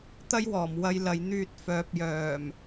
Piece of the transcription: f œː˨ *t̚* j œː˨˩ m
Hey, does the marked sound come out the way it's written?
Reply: no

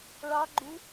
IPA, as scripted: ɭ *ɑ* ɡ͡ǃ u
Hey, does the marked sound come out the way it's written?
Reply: yes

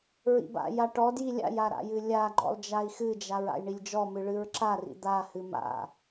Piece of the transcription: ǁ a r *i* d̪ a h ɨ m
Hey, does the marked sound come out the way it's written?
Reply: no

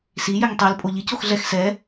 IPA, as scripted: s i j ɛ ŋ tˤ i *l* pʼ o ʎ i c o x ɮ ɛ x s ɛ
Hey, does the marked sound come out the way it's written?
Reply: yes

